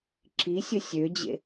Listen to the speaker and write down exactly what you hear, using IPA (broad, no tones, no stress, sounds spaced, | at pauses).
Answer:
ǁ i sʲ ə sʲ ø d͡ʑ ḛ